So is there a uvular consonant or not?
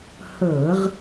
yes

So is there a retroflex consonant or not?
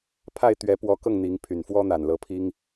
no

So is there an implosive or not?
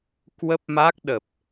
yes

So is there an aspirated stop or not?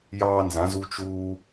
no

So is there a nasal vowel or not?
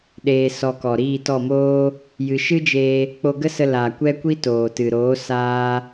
no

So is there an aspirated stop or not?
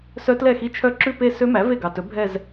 yes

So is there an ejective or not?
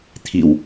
no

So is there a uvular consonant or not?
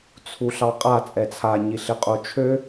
yes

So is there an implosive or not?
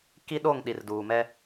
yes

